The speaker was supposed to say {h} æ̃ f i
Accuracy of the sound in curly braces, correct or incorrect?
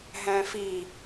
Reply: incorrect